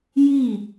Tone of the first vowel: falling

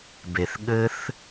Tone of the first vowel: low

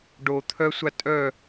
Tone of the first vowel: low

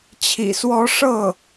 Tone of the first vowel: low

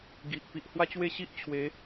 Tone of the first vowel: low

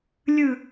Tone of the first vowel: falling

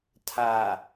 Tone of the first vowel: low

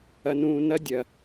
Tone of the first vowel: low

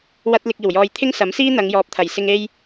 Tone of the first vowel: high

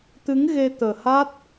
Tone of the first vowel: rising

